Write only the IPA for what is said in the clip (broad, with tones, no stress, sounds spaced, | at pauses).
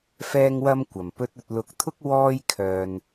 f ɛː˥ ŋ w ɐ˥ m kʷ ɐ˨˩ m p ɵ˧ t̚ ɵ˨ t̚ l ʊ˨˥ k̚ t̪ʰ ʊ˥ k̚ w ɔː˥ j kʰ œː˨ n